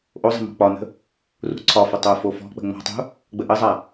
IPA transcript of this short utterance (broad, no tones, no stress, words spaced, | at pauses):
ʔozˤə̤ mɔ̤k͡pɒnə̤ | rṳǀʰɒfɐ tˤofofɔ̤k͡pə̤ ŋ͡mɔ̤tˤṳ | ɡ͡bəʔəzˤa